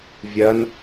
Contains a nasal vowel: no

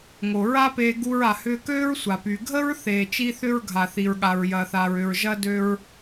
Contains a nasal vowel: no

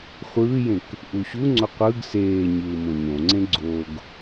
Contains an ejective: no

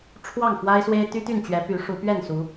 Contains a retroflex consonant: yes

